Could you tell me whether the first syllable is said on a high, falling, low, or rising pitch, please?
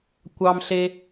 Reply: high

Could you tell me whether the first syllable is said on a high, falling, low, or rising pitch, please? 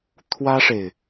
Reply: high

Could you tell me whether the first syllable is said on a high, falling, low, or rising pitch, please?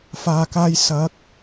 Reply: low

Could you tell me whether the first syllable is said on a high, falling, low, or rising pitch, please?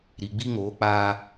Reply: low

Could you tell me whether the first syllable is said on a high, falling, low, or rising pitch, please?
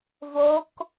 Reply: rising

